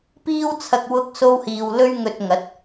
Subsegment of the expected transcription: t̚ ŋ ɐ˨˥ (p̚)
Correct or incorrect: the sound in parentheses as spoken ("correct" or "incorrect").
incorrect